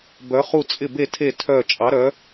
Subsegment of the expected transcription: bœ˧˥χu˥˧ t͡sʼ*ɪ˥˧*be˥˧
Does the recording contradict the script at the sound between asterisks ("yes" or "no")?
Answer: no